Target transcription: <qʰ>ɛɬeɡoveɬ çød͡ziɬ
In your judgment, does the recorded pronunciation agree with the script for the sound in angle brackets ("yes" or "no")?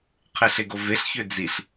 yes